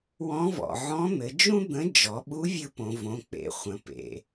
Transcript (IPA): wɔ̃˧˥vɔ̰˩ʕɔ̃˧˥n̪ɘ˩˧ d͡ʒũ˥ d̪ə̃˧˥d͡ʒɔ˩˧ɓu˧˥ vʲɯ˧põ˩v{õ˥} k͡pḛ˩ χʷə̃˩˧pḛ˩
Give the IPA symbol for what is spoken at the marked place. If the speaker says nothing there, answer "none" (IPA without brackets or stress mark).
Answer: õ˩˧